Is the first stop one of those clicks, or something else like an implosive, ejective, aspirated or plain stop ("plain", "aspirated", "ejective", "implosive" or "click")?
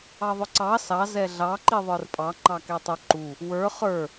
click